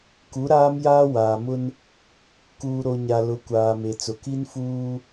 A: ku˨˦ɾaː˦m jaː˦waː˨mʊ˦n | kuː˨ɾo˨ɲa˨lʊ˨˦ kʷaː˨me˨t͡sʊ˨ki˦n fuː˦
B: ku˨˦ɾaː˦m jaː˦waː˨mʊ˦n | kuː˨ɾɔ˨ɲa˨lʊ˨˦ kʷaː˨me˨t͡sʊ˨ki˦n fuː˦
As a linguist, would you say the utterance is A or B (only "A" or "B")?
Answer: A